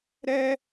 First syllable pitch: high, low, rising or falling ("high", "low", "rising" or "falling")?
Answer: high